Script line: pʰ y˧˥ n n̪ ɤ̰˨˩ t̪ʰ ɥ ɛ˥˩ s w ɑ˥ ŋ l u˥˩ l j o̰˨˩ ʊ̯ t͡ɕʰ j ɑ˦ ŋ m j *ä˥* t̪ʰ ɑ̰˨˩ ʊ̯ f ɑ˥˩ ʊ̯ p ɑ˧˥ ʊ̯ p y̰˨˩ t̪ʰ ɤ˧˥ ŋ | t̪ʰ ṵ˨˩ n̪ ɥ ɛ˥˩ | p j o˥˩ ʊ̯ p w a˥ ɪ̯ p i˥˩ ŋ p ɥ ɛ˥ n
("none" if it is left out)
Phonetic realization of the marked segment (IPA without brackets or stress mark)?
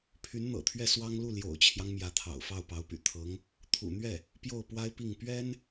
ä˧˥